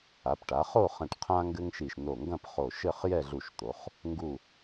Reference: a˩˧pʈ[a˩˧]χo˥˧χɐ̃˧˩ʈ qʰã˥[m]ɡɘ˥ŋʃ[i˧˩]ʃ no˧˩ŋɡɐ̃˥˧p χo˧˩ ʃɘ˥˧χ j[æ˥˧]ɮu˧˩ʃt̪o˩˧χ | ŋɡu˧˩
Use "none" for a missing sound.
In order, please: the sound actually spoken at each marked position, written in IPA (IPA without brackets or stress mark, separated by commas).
a˩˧, ŋ, i˧˩, ɛ˥˧